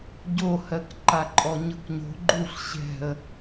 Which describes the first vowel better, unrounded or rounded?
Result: rounded